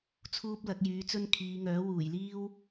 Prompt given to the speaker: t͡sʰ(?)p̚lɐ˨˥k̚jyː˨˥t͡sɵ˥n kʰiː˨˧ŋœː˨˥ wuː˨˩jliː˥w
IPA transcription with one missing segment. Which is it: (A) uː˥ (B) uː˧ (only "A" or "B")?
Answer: A